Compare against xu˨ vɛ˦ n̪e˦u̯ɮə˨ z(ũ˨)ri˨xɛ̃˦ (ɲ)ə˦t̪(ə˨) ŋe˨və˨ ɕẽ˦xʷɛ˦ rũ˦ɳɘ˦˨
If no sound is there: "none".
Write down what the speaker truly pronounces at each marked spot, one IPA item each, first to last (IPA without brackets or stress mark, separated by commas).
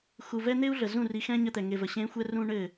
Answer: ũ˦˨, ɲ, ɛ˨